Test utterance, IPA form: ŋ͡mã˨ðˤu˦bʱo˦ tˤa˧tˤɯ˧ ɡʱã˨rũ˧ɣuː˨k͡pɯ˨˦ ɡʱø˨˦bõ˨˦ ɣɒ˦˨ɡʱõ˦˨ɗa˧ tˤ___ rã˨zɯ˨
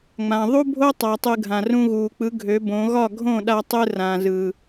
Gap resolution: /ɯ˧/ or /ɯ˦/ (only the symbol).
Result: ɯ˧